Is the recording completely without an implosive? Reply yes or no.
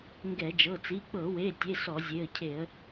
yes